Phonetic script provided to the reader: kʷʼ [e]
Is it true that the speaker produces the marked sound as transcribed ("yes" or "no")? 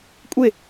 yes